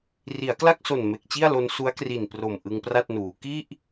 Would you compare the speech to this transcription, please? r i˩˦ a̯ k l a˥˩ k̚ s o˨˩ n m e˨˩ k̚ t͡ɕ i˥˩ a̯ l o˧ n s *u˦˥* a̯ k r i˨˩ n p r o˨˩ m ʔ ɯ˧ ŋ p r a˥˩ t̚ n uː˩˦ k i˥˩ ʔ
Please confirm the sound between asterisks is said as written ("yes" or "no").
yes